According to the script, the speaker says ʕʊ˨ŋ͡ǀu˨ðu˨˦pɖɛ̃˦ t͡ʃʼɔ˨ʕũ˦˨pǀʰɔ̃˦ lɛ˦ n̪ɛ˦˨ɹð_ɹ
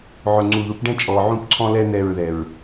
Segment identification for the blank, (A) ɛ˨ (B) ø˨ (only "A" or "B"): A